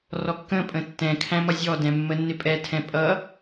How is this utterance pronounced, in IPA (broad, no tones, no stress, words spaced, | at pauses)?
rɔkːə̃pʼə̃ tːɛ̃kʰæ̃ mʌzʲɔdɛ̃ mːənːɪpʼɛtʰɛ̃ pʼʌ